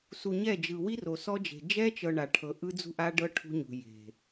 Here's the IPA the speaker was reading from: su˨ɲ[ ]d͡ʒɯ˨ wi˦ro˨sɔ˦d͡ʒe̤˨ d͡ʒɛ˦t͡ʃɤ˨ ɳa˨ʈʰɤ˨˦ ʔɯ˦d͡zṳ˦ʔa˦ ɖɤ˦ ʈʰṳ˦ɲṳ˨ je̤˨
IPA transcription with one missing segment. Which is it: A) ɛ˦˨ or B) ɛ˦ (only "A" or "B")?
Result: A